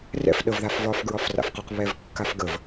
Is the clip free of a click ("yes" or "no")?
yes